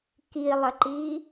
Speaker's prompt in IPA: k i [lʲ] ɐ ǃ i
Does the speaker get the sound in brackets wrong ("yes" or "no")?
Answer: yes